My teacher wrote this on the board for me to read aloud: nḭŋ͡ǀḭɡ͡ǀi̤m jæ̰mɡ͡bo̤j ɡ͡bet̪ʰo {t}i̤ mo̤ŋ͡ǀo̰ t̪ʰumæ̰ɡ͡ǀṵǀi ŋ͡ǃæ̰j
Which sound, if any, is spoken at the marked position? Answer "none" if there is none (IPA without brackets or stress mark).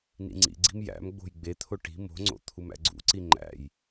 ʈ